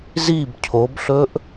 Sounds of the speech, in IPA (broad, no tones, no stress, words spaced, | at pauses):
zib cʰobɬɵʔ